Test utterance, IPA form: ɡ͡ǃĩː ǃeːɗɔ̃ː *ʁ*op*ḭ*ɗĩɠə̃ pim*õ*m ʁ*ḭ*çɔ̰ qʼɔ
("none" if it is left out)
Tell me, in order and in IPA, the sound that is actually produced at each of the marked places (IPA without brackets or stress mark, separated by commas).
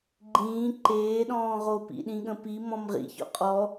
ʁ, ḭ, ɔ̃, ḭ